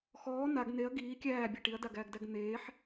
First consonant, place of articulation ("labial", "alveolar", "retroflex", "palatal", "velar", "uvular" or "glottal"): velar